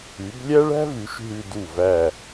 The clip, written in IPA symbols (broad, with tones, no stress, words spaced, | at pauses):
ʉ˩˧blʲæ˥ɭæ̤˥vʉ˩˧ʃ ɦʉ˧du˧˩ væ˧˩